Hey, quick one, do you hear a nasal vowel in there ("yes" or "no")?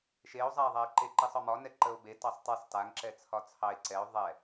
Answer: no